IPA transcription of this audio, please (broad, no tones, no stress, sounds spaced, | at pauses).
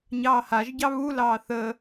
ɲ ɑː h a ʒ ɟ ɑ β u l ɑː θ ə